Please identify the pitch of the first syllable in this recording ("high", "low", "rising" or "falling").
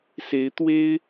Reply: rising